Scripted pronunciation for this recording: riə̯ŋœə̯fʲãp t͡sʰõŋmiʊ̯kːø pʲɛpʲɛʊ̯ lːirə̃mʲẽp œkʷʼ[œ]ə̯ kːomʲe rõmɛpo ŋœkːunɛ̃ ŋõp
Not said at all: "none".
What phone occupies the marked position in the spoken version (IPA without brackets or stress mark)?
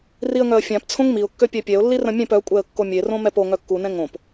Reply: ɛ